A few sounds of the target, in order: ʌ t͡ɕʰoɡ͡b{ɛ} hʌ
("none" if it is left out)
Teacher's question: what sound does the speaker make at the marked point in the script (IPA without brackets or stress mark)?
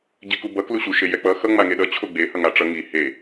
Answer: e